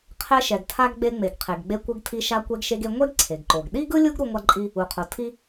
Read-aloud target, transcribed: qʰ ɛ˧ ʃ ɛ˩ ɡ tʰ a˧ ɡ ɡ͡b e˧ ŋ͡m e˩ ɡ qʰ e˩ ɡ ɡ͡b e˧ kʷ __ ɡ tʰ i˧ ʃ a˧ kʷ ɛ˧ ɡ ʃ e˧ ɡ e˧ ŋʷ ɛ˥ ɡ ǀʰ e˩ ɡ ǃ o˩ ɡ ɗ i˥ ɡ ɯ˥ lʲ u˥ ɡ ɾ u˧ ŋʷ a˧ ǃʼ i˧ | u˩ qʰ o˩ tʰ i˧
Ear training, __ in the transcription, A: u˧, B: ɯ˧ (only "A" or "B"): B